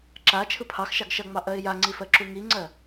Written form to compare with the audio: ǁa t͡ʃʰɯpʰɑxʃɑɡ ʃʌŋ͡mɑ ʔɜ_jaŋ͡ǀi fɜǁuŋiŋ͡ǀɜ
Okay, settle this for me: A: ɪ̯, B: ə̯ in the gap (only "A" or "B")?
A